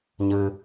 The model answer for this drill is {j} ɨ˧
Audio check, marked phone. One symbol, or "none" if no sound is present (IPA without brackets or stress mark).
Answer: ɲ